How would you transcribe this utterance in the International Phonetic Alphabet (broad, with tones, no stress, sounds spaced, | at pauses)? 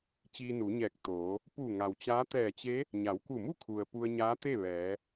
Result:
t͡ɕ iː˧ n u˩˧ ɲ ɛː˧˩ k̚ t̪ oː˩˧ | p u˧˩ ŋ a˩ w t͡ɕ aː˧˥ t̪ ɛː˧˩ t͡ɕ e˧˥ | ɲ a˩˧ w k u˧˩ m u˥˨ kʰ u˩ ə̯ p u˧ ə̯ ɲ aː˧˥ t̪ e˥˨ ʋ ɛː˩˧